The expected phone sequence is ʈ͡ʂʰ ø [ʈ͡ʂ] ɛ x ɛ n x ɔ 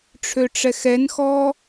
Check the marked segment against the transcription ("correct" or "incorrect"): correct